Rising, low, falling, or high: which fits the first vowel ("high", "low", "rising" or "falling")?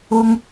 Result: high